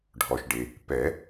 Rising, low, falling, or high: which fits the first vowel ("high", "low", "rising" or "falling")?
low